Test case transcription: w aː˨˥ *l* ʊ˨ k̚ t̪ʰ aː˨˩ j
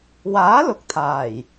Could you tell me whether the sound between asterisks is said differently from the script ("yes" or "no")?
no